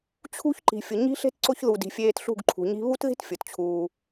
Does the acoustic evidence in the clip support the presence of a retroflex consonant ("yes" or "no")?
no